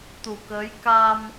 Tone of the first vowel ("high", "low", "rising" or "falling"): low